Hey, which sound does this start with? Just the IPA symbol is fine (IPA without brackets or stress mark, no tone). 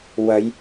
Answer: w